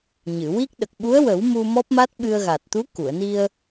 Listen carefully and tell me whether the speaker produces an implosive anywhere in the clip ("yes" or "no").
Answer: yes